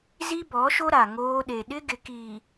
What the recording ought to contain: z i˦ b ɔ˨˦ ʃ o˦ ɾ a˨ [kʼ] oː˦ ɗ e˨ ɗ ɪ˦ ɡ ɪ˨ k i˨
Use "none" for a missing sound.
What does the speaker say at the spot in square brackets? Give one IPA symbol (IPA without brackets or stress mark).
ŋ